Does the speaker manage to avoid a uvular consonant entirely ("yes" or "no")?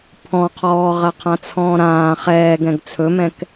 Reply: no